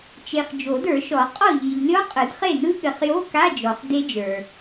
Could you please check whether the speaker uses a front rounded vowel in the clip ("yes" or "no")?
no